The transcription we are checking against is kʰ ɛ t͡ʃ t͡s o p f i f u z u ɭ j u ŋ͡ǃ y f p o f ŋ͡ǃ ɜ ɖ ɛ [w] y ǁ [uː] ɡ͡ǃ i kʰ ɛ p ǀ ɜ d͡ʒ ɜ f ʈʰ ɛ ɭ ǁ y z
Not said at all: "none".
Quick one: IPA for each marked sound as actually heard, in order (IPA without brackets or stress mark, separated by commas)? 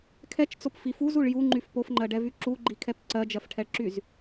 v, u